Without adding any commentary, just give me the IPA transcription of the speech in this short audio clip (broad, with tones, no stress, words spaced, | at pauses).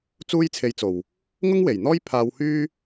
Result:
t͡suː˥jt͡sʰe˧jt͡so˨w | ŋʊ˥ŋwe˨˩jn̪ɔː˥j pʰaː˧whyː˥